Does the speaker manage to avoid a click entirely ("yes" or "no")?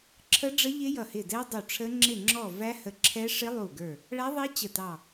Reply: no